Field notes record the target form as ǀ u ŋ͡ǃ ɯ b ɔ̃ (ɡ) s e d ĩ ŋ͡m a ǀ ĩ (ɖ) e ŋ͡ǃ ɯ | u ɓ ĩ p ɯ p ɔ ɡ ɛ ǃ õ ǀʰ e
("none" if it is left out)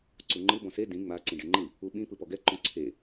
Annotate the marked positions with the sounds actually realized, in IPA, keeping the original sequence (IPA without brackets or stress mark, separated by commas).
none, ɖ